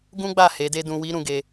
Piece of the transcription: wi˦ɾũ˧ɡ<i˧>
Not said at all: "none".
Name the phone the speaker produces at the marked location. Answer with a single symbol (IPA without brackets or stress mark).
e˧